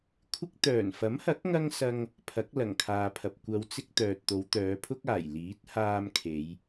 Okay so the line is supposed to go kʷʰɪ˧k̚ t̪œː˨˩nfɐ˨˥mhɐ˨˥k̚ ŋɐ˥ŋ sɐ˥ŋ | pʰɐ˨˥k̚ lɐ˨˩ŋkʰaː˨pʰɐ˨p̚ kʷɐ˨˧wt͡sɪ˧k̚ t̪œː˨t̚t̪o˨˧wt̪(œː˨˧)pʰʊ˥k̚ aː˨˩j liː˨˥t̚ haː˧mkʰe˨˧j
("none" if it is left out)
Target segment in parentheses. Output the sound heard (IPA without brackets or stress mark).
œː˨˧